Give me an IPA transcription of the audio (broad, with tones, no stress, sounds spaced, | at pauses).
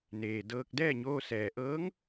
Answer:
n eː˩ d ɤː˧ k̚ d ɛː˥˨ ɲ oː˧ s ɛː˩ ʔ ɤː˧˥ ŋ